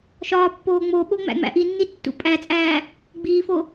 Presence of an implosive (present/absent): present